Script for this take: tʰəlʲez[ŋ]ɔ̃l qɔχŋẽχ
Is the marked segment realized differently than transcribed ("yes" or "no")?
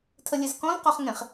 yes